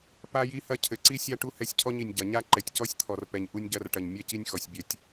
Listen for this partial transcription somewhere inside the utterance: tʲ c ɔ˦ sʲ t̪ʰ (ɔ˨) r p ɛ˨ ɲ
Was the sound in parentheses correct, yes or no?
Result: yes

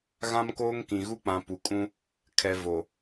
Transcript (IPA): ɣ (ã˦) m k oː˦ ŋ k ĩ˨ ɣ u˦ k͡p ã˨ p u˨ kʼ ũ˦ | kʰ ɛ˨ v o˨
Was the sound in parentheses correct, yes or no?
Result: yes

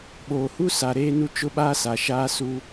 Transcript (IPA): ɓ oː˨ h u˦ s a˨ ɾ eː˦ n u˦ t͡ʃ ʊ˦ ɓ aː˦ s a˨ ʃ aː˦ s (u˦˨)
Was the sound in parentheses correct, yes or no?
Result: no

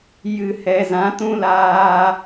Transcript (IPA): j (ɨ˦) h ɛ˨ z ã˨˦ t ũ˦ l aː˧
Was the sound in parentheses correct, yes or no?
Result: no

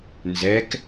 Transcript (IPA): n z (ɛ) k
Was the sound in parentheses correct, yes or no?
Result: yes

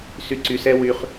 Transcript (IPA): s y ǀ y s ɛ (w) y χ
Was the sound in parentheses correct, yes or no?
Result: yes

